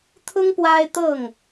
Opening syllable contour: high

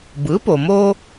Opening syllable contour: rising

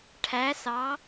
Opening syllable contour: rising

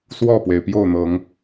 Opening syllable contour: falling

